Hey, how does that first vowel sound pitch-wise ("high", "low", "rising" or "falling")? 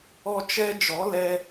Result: high